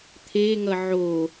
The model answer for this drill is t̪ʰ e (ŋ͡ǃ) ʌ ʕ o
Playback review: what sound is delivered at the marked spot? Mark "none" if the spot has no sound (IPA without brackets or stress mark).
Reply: ŋ